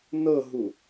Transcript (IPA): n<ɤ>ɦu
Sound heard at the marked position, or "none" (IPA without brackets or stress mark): ɤ